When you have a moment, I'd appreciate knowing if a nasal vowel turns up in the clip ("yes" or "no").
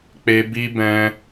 yes